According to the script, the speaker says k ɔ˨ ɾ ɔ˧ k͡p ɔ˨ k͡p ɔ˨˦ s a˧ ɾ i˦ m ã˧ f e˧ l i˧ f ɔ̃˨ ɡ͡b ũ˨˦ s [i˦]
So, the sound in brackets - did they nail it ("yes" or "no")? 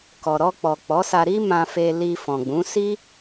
yes